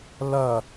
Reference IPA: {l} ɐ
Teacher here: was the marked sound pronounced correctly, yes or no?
yes